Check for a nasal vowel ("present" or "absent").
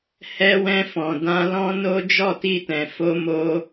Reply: present